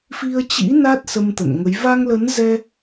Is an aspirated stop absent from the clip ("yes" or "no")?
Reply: yes